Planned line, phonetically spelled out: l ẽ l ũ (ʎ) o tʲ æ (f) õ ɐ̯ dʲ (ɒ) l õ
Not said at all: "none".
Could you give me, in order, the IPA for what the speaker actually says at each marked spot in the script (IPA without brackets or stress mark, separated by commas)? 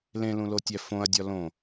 l, f, ɒ